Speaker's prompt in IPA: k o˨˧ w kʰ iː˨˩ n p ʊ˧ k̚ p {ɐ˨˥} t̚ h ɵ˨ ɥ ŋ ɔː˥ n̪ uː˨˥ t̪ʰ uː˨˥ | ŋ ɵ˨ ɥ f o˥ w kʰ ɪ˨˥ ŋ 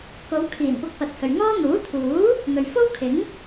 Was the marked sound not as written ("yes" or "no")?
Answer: no